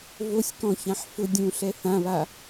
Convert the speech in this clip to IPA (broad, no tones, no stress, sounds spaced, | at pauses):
v o sʲ k ɔ̃ ç ã ħ f ʊ dʲ ũ ɬ ɛ θ ã β a